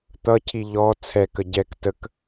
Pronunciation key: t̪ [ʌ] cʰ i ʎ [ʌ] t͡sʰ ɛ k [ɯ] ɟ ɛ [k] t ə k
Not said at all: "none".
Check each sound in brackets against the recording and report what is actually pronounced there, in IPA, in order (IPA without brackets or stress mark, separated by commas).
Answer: ʌ, ɔ, ə, k